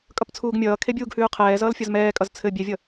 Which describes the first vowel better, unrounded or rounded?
unrounded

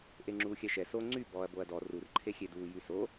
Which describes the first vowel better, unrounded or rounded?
unrounded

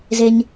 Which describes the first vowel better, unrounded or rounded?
unrounded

